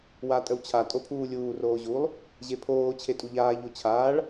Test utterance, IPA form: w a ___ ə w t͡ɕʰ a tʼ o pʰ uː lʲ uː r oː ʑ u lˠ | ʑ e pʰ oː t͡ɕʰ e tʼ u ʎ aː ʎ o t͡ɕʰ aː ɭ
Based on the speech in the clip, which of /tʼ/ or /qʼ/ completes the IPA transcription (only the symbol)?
tʼ